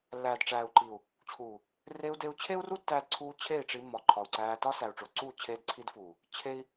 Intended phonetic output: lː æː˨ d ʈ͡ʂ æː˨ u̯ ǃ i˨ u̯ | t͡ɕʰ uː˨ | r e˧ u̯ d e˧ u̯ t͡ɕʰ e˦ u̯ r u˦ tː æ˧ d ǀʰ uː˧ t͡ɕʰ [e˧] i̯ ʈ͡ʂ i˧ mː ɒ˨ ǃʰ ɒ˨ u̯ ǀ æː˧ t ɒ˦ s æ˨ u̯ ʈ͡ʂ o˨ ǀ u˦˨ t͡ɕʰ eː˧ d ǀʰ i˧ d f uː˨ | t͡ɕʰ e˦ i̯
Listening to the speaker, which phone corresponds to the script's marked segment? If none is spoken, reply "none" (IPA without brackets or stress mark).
e˦˨